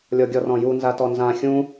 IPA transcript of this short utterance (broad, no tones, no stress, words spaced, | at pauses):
lʲɔɡʲɔrɔ̃ju nzatɔnzã xʲũ